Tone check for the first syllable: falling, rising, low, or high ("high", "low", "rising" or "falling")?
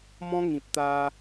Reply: high